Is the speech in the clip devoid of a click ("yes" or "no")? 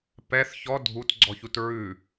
no